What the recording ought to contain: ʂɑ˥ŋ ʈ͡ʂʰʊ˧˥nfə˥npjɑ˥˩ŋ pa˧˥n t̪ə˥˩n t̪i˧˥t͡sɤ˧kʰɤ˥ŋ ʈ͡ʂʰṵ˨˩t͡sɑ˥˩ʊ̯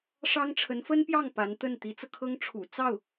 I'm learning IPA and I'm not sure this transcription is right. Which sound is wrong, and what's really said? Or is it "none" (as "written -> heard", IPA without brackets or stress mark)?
ʊ˧˥ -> ə˧˥